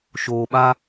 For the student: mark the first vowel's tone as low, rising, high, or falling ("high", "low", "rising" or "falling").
low